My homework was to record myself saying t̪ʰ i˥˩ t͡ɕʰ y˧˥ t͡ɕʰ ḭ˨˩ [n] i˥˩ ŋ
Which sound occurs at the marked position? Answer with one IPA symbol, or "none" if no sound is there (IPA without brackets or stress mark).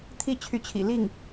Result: l